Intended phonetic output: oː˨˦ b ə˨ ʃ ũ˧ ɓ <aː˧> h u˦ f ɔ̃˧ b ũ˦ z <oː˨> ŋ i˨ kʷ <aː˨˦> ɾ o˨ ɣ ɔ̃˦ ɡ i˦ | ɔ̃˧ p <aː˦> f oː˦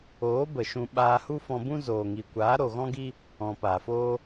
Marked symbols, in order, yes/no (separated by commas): yes, yes, yes, no